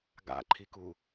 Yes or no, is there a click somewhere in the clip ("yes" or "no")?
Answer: yes